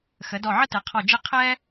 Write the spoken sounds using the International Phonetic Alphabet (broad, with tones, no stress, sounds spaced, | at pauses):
x ə˩˧ d ɔ˧˩ ʕ ə˥ t ɘ˩˧ qʰ ɔ˧˩ d͡ʒ ɘ˥˧ qʰ ɛ˥